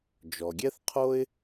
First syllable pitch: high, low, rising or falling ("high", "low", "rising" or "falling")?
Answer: low